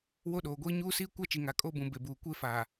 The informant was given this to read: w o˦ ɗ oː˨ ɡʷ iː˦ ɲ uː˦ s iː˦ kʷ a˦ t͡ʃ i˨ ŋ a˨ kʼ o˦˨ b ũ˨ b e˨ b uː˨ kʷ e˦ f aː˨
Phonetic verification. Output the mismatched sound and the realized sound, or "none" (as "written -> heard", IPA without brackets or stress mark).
none